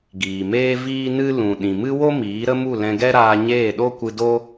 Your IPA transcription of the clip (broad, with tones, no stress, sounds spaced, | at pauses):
ɡ iː˨ m eː˦ v iː˦ n ɨ˦ l ũ˨ ɗ ĩ˨ m ɨ˦ w o˦ m iː˨˦ ɾ ə˦ m u˦˨ l ɛ̃˧ ɡ ɛ˦ ɾ aː˧ ɲ eː˦˨ ɗ o˦ kʷ ɨ˧ d o˦